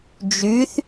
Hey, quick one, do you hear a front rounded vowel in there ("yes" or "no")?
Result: yes